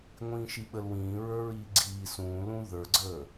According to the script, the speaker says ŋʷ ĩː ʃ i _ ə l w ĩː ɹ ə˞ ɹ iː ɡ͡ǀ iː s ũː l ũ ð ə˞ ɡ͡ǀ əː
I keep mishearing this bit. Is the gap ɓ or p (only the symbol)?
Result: ɓ